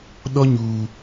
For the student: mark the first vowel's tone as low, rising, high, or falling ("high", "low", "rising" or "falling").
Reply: high